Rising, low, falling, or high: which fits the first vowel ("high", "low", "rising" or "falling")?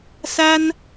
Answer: high